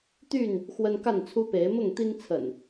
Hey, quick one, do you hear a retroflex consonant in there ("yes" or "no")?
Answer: no